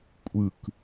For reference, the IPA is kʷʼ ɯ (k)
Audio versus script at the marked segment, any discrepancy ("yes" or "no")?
no